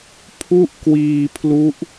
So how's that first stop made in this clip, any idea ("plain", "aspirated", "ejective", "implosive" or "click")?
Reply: aspirated